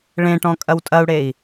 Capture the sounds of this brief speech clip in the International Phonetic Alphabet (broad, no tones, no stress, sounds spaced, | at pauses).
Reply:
ɭ ẽ ʈ ɔ̃ kʼ ɐ w tʼ ɐ u̯ ɽ e i̯